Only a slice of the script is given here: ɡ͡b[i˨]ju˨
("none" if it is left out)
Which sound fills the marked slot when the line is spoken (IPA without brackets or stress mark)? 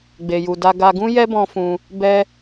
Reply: e˨